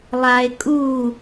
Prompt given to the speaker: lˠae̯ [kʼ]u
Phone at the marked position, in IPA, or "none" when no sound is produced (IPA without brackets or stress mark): kʼ